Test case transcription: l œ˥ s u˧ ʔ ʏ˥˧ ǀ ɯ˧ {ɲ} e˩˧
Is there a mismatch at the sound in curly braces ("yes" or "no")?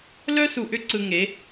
yes